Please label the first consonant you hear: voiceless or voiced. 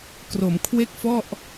voiceless